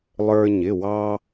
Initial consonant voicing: voiced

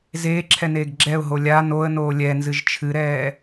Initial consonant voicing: voiced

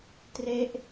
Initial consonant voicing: voiceless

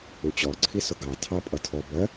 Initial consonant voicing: voiceless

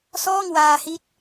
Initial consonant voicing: voiceless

